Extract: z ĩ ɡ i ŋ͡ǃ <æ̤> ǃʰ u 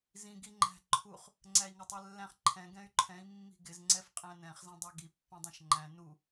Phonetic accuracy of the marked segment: correct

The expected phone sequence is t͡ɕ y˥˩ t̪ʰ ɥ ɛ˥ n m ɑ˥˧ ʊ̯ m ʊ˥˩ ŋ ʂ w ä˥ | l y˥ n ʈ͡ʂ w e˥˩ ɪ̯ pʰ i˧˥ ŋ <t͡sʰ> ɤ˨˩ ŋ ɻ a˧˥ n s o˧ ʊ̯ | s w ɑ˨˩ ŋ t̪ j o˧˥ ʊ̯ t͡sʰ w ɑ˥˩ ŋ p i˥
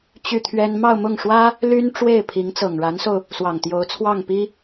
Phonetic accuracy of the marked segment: incorrect: t͡s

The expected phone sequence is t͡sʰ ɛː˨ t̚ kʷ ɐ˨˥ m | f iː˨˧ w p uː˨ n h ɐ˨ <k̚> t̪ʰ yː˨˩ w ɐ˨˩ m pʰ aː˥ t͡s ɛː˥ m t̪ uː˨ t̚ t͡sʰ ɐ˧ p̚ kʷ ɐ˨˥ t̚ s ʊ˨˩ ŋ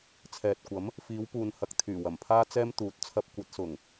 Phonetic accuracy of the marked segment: correct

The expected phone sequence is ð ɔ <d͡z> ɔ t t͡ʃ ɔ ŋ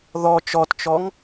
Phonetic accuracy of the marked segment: incorrect: t͡ʃ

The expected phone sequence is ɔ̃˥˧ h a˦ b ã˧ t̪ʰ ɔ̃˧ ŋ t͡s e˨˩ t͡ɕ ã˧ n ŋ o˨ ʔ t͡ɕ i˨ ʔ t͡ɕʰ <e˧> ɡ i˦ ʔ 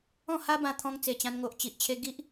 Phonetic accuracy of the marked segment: correct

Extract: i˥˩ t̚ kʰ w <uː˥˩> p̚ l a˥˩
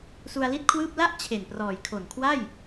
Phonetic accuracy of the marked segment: incorrect: ɯː˥˩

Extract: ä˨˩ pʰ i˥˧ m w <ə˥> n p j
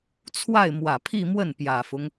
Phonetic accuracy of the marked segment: incorrect: ə˥˩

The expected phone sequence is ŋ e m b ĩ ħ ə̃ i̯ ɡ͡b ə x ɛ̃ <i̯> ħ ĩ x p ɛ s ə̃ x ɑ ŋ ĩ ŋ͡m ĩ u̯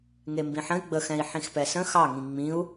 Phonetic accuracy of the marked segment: correct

